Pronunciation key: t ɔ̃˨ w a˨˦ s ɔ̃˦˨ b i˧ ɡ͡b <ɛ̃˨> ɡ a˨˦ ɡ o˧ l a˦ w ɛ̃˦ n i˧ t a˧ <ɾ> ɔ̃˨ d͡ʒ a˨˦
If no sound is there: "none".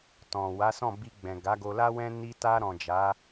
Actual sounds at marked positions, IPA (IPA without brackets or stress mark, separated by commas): ɛ̃˨, ɾ